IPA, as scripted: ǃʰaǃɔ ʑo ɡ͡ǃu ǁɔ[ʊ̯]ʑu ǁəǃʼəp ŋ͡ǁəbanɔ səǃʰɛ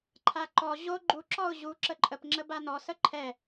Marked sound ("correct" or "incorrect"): correct